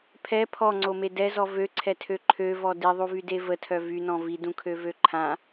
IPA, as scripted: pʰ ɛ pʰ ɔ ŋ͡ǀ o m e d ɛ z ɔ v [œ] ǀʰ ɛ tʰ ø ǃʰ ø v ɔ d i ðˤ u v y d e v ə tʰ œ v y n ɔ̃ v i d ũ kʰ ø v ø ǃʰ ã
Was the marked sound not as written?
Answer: yes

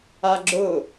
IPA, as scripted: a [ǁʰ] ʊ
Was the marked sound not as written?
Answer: yes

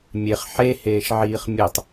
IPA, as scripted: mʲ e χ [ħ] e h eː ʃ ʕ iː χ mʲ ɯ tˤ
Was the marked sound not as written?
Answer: no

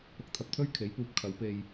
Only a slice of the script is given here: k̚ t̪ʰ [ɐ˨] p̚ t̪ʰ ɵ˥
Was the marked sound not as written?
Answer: no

